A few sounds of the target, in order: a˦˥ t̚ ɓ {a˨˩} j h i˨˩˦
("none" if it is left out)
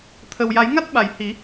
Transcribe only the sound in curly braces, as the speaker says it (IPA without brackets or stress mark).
a˨˩˨